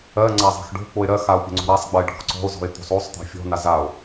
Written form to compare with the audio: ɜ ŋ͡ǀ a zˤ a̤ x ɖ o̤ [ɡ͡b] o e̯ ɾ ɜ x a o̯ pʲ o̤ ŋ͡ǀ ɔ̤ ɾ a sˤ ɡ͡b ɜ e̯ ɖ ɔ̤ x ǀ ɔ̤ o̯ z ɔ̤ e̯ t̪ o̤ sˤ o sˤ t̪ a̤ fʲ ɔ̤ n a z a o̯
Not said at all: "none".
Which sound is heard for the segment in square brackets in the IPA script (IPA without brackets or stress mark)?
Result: k͡p